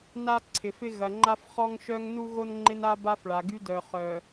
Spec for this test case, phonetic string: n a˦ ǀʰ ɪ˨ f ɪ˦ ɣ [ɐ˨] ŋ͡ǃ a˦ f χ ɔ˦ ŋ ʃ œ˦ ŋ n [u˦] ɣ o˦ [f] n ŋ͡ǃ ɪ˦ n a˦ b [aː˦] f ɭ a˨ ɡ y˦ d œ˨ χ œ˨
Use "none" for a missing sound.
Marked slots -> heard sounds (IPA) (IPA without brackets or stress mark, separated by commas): ɐ˨, u˦, none, a˦